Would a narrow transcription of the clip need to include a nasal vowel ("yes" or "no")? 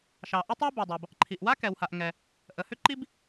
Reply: no